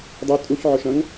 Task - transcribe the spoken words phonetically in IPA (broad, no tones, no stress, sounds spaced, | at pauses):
dˤ œ tʼ u ç ʕ ʊ ʃ ɐ̃ ŋ